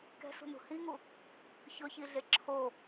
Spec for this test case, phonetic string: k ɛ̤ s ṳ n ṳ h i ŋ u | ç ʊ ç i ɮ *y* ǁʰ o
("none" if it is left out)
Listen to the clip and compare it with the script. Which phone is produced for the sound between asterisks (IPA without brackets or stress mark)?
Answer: e